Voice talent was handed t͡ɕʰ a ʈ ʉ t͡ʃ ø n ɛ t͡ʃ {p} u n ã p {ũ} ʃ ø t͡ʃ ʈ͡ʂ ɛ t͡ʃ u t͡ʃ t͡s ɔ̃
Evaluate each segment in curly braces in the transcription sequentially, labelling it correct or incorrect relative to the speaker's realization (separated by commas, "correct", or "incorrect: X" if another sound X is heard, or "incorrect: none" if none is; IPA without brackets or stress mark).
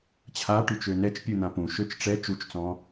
incorrect: pʲ, correct